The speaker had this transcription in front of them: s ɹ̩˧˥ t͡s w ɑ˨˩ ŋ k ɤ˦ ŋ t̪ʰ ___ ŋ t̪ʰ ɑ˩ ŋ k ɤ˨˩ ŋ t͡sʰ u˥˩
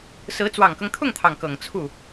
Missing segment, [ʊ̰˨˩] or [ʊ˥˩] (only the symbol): ʊ˥˩